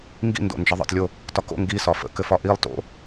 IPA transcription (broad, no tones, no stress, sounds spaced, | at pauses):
ŋ ɡ ḭ n d o̰ n d͡ʒ ə ðˤ ə̰ t lʲ o | t ɒ k o̰ ŋ ɡ i s ɒ f ə̰ k ɘ f ɒ ʔ i lˠ t o̰